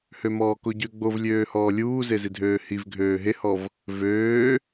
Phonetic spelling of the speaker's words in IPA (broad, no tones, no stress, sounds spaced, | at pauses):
h ø m ɔː k o ɟ ø ɡ͡b o v lʲ øː h ɔː lʲ uː z e z i dʱ øː h i v ɡʱ øː ɦ e h ɔ v | v øː